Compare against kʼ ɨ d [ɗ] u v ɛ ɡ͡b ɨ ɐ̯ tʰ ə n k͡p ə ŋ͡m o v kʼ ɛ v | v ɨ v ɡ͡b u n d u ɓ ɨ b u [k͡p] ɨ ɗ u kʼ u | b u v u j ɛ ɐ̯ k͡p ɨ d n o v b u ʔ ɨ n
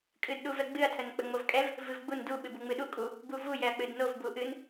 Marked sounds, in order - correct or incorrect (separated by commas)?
correct, incorrect